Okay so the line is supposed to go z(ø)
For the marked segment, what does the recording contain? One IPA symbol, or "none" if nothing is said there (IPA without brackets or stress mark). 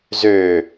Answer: ø